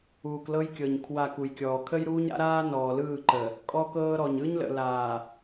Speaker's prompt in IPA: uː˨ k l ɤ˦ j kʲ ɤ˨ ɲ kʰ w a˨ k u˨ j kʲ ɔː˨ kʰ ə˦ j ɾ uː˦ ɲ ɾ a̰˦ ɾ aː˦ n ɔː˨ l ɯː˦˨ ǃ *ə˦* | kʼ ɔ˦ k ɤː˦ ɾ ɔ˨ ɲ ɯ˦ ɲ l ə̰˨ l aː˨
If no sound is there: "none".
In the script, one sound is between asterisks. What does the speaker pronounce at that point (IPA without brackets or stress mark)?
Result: ə˨